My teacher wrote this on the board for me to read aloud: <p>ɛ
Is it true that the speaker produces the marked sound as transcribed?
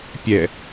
no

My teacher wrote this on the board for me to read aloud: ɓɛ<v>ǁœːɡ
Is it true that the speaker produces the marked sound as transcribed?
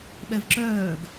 yes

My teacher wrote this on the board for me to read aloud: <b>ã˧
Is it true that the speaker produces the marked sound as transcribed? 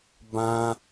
yes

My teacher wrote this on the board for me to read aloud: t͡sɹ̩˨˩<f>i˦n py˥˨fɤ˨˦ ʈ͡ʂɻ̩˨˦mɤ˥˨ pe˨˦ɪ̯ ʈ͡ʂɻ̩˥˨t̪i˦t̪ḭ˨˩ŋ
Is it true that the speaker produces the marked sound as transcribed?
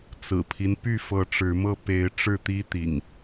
no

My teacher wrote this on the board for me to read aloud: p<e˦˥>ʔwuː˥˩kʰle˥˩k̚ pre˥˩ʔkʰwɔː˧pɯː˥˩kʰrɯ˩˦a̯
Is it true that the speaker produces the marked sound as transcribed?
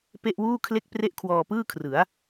no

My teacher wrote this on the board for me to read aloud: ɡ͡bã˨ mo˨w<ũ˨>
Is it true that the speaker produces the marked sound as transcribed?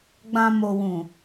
yes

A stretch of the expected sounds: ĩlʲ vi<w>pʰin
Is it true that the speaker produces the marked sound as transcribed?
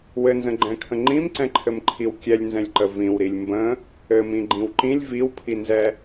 yes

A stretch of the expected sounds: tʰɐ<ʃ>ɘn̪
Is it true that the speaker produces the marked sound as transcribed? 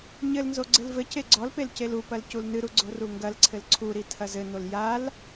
no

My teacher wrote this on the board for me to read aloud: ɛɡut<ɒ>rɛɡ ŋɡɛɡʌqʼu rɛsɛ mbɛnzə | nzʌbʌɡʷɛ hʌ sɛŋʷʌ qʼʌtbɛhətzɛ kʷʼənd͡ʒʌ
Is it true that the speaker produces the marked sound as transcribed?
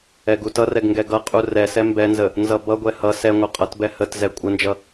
no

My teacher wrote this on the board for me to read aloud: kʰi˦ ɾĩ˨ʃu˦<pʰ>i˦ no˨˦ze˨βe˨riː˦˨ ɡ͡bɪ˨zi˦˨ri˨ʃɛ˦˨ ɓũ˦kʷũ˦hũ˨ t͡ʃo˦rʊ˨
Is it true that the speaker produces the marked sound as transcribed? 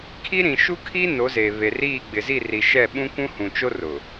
no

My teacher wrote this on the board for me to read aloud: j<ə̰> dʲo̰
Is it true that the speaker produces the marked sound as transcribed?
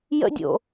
yes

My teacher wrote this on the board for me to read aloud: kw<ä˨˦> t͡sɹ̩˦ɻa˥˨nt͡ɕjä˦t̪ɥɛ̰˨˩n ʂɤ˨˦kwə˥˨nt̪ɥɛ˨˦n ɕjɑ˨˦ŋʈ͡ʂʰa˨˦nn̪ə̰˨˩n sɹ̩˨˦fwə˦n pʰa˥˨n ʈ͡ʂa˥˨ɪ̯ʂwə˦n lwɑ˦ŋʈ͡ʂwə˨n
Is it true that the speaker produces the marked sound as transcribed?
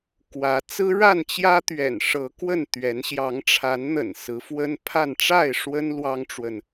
yes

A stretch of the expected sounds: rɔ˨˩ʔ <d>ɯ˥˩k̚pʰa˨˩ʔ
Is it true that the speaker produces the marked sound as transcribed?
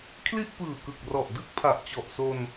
yes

